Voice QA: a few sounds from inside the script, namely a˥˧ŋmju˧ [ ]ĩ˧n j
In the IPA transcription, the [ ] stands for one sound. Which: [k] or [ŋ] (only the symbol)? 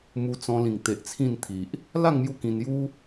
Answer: k